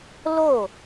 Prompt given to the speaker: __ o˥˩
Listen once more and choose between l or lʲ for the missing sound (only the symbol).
l